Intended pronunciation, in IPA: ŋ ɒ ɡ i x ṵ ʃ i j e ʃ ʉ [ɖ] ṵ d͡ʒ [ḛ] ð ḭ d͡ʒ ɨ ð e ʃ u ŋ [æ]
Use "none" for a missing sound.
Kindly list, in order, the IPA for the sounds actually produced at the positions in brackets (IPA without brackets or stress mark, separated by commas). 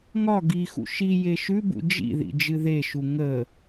b, ḭ, ə